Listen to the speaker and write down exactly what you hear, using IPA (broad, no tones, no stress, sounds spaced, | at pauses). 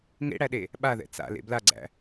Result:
ŋ ḛ ɽ æ ɗ e | ɓ a ð ɛ̰ t͡s a̰ l ḛ b l a ɡ͡ǀ æ̰